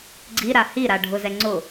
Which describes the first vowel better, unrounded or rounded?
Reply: unrounded